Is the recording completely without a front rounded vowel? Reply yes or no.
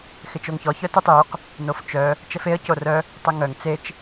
no